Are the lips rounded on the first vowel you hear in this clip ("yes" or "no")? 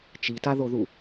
no